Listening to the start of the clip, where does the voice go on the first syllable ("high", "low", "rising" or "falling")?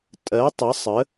rising